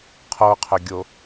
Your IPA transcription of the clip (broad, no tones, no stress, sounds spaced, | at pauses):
qʰ o qʰ ɵ ɡʲ o